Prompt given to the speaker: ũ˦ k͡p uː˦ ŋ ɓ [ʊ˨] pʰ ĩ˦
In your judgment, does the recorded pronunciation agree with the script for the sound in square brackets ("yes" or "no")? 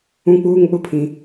no